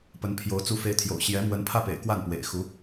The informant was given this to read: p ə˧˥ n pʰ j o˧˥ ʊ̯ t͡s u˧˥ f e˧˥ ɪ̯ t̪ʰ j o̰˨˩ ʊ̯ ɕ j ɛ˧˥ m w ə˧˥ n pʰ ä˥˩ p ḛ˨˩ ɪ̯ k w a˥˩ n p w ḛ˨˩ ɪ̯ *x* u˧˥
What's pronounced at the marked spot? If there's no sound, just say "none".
x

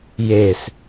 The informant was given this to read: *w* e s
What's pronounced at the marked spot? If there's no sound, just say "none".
j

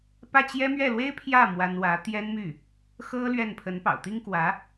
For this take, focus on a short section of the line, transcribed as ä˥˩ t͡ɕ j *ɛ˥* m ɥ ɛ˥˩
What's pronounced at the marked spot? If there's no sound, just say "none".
ɛ˥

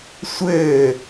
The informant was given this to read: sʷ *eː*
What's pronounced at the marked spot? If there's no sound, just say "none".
ɘː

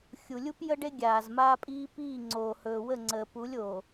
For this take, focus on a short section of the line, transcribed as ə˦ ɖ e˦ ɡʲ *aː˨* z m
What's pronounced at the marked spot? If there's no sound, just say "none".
aː˨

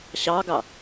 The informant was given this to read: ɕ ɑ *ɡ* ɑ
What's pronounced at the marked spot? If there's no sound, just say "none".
ɡ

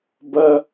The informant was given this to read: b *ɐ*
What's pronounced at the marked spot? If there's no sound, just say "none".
ɐ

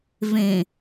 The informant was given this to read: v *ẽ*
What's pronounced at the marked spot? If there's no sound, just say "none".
ẽ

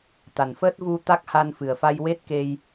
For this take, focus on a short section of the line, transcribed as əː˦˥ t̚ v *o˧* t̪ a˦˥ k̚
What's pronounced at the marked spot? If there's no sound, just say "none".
u˧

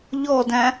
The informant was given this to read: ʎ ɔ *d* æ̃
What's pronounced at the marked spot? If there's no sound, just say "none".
d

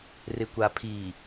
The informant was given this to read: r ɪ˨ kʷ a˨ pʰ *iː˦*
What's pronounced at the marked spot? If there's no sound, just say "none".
iː˨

